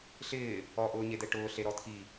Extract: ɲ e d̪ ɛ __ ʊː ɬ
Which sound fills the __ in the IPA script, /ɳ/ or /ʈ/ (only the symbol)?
ʈ